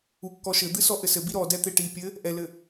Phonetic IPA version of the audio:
ukːɔʃɘd̪ɨ sɔʔɘsɘbi ɾɔdɛ t̪eʈipʲɘ | ʔɛlɘ

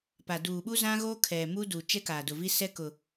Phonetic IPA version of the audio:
pa˨ duː˨ɓu˦zã˦ɣo˦ kʰɛ˨ mu˦du˨ t͡ʃɛ˦kaː˨dʊ˨vi˦ sɛ˦kʊ˨

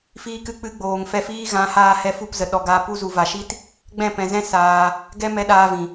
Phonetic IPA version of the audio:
fiː˧kɨ˧ k͡pɨ˧ ɡ͡boː˨ŋfɛ˧fiː˦ ɣã˨˦haː˧ hɛ˧fu˦˨pzə˨ ɗɔ˨ɡaː˧ pu˧zu˨va˨ʃi˦t | ɡ͡bɛ̃˦˨pɛ̃˨zɛ̃˦ saː˧ | ɡɛ˦mɛ˧ ɗaː˧vĩ˨

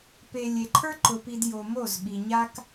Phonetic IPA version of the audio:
pe˨ lʲe˨ǃʰə˞˦ ǃʊ˨pi˨d jo˨mo˦˨z ɓi˨ɲa˦k

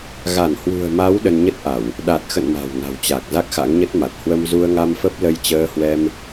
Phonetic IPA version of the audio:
ɣa˧˩nhwṳ˨˩ə̯ma˨˦w ɗə˧nɲə˦˥t̚ʔa˧˩˨w | ɗa˨˩t̚xə̰˧˨n ma̤˨˩wna̤˨˩wt͡ɕa˨˩k̚ za˦˥k̚xa̰˧˥ŋɲə˦˥t̚ma˨˩t̚ hwə˧m zu˧ə̯ŋa˧mfə˦˥p̚ lə˧j t͡ɕəː˧ hwɛ˧m

